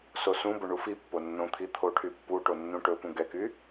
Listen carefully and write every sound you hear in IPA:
s o s ũ b ɵ ɳ u f i pː o nː õ t̪ʰ i t̪ʰ o ʈʰ y pː u ʈ o nː ũ ʈ ɵ p ũ ɡ ɛ k y

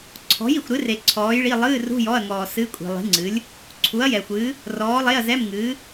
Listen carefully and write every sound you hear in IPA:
ǀʰ ɔ̤˨˥ j i˨ xʷ ɾ ɨ˨˥ r e˨ ǀʰ ɔː˨˥ j ɭ i˧˥˧ lˠ ɨː˧˥˧ r ṳ˧˥˧ j ɔ˧˥˧ ɐ̯ ŋ ɔː˨ s ɨ˧˥˧ kʷʼ i̤˨ lˠ i̤˨˥ ŋ͡ǀ ɨ˨˥ lʲ | ǀʰ u˨˥ ɐ̯ j ɛ˨ xʷ ɨː˨˥ | r ɔː˨˥ lˠ e˧˥˧ ɐ̯ z ɛ˧˥˧ m ŋ ɨː˨˥

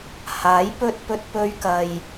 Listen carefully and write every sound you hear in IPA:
h aː˨˥ j p ɵ˧ t̚ p ɵ˧ t̚ p ɵ˧ ɥ k ɐ˨ j

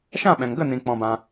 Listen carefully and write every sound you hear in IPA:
ʃ ã˦˨ ɓ ɛ̃˨ ŋ ɡ ə˦˨ n ĩ˨ k͡p ɔ̃˧ b ã˧

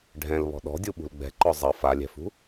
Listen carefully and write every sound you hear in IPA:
ɖʱ ɛ̃ l β ɔ̤ ɗ ɔ̤ dʲ u ɓ ṳ l ɡ͡b ɛ̤ ǃ ɔ zˤ ʌ f a lʲ ɛ̤ f ṳ

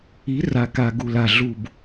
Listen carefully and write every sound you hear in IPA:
i˨˥ r a˨˩ k a˨˩ ɡ u˨˩ l a˨˩ ɮ u˨˩ b

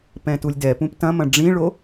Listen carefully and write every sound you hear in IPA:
p ɛ̃ t u lʲ d ɛ p ũ p t ɐ̃ m ɐ̃ ɖ͡ʐ ĩ ɭ o

